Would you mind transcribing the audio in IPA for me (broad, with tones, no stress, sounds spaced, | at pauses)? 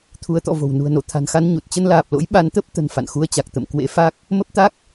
t̪ʰ u˨˦ ə̯ t̪ ɔ̰˧˨ v o̤˨˩ w n ṳ˨˩ ə̯ n o˧˩ t̪ʰ a̤˨˩ n x a˧ n ɲ u˨˩ t̚ t͡ɕ ə˧ n l aː˨˩ p̚ l o̰˧˥ j ɓ a˨˦ n t̪ ə˦˥ p̚ t̪ ə̤˨˩ n f a̰˧˨ n x u˧ ə̯ t͡ɕ a˨˩ k̚ t̪ ə̰˧˨ m k w ḛ˧˥ f a˦˥ k̚ | m ə˦˥ p̚ t̪ a˦˥ k̚